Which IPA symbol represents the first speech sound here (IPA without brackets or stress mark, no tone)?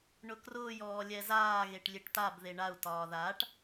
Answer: ɳ